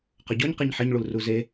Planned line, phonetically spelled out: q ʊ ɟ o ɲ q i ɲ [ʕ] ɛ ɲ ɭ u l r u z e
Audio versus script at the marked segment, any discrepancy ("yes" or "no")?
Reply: yes